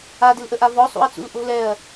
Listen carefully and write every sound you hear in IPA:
a d ɪ l ʔ ə ʔ a v ɔ sˤ ṵ ɐ̯ t͡s ṵ l ʔ o̤ l ɛ ɐ̯

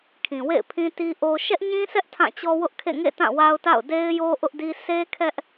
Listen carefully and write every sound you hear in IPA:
kʰ ĩ˨ w ḛ˦˨ ɪ̯ pʰ ĩ˦ t i˦ ʔ o˦ ʃ ɛ˦ ʔ ɲ ĩ˦ sʰ ɛ˦ ʔ tʰ ã˦˨ t͡ɕ ɔ˦ w ʊ˦ ʔ kʰ ḛ˦˨ ŋ ḛ˦˨ t ã˦˨ w a˦ ʊ̯ t a̰˦˨ ʊ̯ d e˦ ɪ̯ j o˦ ʔ ʊ˦ ʔ d i˦ sʰ e˦ kʰ ɛ˦ ʔ

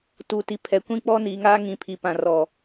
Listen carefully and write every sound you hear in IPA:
t u˨ t i˨ pʰ ɛ˨ kʷ ĩ˦ k͡p ɔ˦ n iː˨ ŋ aː˦ ŋ ĩ˨ pʰ i˨ p ã˨ r ɔ˨

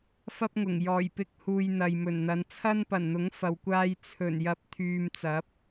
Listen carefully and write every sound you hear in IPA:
f ɐ˥ p̚ ŋ ʊ˨˩ ŋ j ɔː˨˩ j p ɪ˧ k̚ h uː˨ j n̪ ɐ˨ j m ɵ˨˩ n n̪ ɐ˨˧ n t͡sʰ ɐ˥ n p ɐ˨˩ n n̪ ʊ˨˥ ŋ f ɐ˨ w kʷ aː˧ j t͡sʰ ɵ˨˩ n j ɐ˨˥ p̚ t̪ʰ yː˨ m t͡s ɐ˨˥ p̚

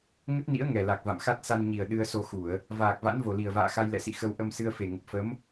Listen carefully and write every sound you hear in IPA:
ŋ ə˦˥ t̚ n ḭ˧˥ ə̯ ŋ ɛ˨˩ l a˨˩ k̚ v a̰˧˨ m x a˦˥ t̚ s a˧ n ɲ i˨˩ ə̯ ɗ ɨ˧ ə̯ s o˧ x u˧˩˨ ə̯ | v aː˨˩ k̚ v a̰˧˥ n v o˨˩ l i˨˩ ə̯ v a̰ː˧˨ x a˧ j l ɛ̰˧˨ s ḭ˧˨ x ə˧ w ʔ ə˧ m s ɨ˧ ə̯ f e˨˩ ŋ ə˨˩ p̚ f ə˨˦ m

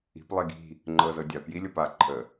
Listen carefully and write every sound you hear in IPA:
i̤ p lˠ i ɡ i̤ | ŋ͡ǃ ɤ z ɤ dʲ a p j i lʲ ɤ p a ǃʰ ə

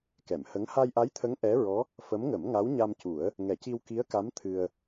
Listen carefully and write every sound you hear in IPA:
k ɛ˨˩˨ m h ə˧˥ ŋ h a˧ j ʔ a˧˥ j t̪ʰ ə˧˥ ŋ ʔ ɛ˧˥ ɹ ɔ˧˥ | f ə˧˥ m ŋ ə˨˩˦ m ŋ a˧˥ w ɲ a˧ m c u˨˩˦ ə̯ | ŋ ɛ˨˩˦ c i˧ w k i˧˥ ə̯ k a˧˥ m t̪ʰ ɨ˧ ə̯

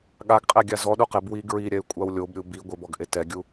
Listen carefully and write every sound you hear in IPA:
ɠ a ɡ qʼ ɛ ɡʲ a z ɔ ɗ u q ɪ b w i ɡ ɹ i ɾʲ ɛ y̯ kʷʼ a w lʲ o b ɾʲ u b i ɡʷ ɪ b ɔ ɡ ʔ e t ɛ ɡʲ u

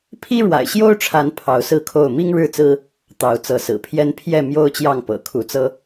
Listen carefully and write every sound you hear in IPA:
pʰ i˦ ɻ w a̰˨˩ ɪ̯ ɕ j o˦ ʊ̯ ʈ͡ʂʰ a˨˦ n pʰ ɑ˨˦ ʊ̯ s ɹ̩˥˨ kʰ o˥˨ ʊ̯ m i˦ ŋ ɻ ɻ̩˥˨ t͡s ɹ̩˦ | t̪ ɑ˨˦ ʊ̯ t͡s ɤ˨˦ s ɹ̩˨˩ pʰ j ɛ˦ n pʰ j ɛ˥˨ m j o˦ ʊ̯ t͡ɕ j ɑ˥˨ ŋ p ɤ̰˨˩ kʰ u˨˦ t͡s ɤ˦

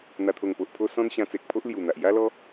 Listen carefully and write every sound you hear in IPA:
n̪ a˨˩ t̪ʰ o˨˩ ŋ p o˨ ʔ pʰ o˧ s ɔ̃˦ n ɕ ã˧ t͡s e˨ k̚ pʰ o˦ ʔ l j u˨˩ n̪ a˨ ʔ j a˦ l ɔ˦

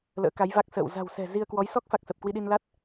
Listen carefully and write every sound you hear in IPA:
l ə̰ː˧˥ k a˨˦ j v a˦˥ k̚ s ə̰ː˧˨ w z a̤˨˩ w s ɛ̤˨˩ z i˧ ə̯ k w ɔ˨˦ j s ɔ˦˥ k̚ f a˨˩ k̚ s ə˨˩ p̚ k w i˧ ɗ i˧ n l a˦˥ t̚

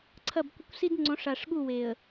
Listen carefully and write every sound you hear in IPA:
ǀʰ ɐ˦˨ b kʷ ə˦ kʷ s i˦ d ŋ͡ǀ õ˨˦ ʂ a˨ ʂ ɠ u˦˨ w e˨ ə̯

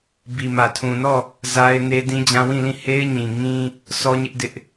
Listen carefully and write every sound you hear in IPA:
b i˨ m ä˨ tʰ ũ˨ n ɔ˦˨ | z a˦ ɪ̯ n e˦ d ĩ˦ d͡ʑ ã˦ w ĩ˦˨ l ĩ˦˨ h e˦ ɪ̯ ɲ ĩ˨ ŋ ĩ˦ | sʰ ɔ˦ ɲ ɪ˦ ʔ d ɪ˦ ʔ

